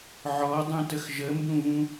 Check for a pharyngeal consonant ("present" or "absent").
present